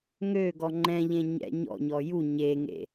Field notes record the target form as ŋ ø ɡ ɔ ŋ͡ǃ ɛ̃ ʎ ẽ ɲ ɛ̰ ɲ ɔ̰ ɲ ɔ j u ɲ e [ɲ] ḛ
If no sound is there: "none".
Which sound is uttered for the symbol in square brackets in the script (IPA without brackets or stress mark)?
ŋ